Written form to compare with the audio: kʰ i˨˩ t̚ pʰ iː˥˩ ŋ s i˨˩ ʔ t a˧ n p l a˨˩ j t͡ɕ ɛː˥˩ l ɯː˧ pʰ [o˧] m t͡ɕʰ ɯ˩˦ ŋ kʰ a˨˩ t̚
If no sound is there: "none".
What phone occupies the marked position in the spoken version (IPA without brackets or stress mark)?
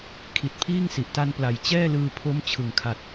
o˦˥